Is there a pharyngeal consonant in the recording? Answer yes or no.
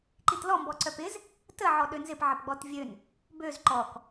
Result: yes